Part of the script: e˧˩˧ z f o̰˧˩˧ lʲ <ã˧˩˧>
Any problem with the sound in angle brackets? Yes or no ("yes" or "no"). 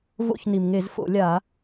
yes